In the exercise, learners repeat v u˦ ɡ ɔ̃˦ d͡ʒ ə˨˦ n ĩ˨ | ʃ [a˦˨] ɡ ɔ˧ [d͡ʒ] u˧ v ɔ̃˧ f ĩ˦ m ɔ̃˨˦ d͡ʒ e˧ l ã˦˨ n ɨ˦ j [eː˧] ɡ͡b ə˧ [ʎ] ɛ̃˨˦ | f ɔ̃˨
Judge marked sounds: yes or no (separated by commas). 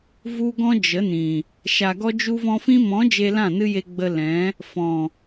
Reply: no, yes, no, no